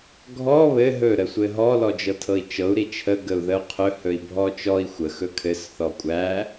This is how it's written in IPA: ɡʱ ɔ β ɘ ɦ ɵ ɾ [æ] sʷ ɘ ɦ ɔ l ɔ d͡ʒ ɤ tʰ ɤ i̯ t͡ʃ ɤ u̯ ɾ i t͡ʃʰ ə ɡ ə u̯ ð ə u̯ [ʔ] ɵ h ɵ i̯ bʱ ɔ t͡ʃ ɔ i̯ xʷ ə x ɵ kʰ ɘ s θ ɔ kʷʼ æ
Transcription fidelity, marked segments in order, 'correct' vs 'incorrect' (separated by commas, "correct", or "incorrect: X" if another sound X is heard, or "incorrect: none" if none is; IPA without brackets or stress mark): incorrect: ə, incorrect: qʰ